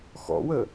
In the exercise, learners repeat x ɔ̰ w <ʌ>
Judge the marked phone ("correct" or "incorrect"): incorrect